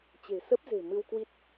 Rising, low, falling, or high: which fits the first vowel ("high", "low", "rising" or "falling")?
low